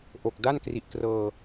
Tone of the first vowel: low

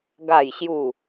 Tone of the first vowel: falling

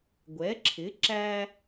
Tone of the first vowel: rising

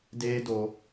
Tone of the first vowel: high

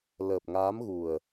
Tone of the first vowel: low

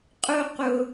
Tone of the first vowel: falling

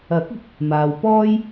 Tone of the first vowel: rising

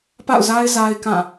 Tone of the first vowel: falling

